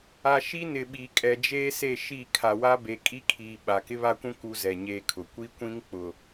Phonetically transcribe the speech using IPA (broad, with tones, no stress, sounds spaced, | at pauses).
a˨ ʃ i˦ n ɪ˨ ɓ i˨ kʼ ɛ˨ d͡ʒ eː˦ s e˦˨ ʃ i˦˨ kʰ a˨ w a˦ b e˨˦ kʼ i˦ kʰ iː˨ ɓ a˨ k ɪ˦ β a˦ kʷ ũ˦ k u˦ z ɛ˨ ɲ eː˦ kʰ ʊ˨ kʷ i˦ kʷ ĩ˦ ŋ k͡p ʊ˨